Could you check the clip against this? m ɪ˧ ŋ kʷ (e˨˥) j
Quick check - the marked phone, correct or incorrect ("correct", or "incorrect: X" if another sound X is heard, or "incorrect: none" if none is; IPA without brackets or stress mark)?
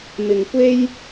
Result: incorrect: e˥